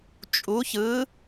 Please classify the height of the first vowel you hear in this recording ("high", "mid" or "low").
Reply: high